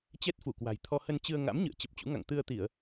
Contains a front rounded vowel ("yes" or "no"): no